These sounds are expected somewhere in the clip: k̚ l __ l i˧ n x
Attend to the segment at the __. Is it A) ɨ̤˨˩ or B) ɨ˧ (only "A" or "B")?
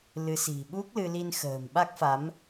B